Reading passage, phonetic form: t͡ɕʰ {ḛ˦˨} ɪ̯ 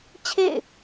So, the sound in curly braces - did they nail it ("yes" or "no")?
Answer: yes